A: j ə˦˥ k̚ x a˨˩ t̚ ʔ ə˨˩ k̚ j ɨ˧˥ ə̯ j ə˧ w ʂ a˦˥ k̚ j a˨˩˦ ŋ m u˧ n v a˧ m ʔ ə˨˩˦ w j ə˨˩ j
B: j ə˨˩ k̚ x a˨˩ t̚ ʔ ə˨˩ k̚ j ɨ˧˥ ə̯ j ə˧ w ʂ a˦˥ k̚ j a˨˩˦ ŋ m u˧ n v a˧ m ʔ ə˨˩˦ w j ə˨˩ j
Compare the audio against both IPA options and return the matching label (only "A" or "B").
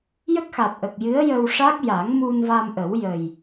A